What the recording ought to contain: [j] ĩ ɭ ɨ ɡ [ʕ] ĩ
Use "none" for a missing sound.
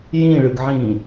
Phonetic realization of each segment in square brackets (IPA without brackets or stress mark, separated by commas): j, ʕ